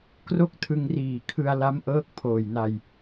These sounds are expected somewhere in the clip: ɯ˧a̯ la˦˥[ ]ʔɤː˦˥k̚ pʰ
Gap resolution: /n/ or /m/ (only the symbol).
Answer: m